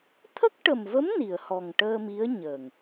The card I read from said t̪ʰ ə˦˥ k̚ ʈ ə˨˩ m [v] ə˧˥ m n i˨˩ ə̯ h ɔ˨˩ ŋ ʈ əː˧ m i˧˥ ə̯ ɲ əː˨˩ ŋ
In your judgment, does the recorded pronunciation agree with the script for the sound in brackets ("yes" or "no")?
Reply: yes